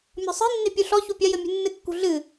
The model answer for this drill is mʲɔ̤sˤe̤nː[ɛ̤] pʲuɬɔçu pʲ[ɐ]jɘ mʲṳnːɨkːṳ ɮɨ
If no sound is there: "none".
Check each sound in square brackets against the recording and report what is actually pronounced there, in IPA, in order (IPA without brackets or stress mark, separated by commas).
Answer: e̤, ɐ